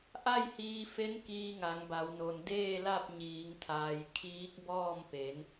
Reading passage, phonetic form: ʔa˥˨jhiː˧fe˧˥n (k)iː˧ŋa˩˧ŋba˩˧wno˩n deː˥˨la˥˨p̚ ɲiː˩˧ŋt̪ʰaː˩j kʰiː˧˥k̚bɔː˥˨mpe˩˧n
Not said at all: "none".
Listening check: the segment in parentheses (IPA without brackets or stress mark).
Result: k